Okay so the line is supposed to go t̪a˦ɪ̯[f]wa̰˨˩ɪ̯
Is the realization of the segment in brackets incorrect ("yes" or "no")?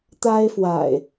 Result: no